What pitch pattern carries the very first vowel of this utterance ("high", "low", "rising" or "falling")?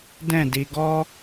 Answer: falling